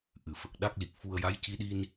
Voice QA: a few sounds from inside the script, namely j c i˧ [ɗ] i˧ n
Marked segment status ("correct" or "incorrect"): correct